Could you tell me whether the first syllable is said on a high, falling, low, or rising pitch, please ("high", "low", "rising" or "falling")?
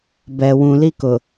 low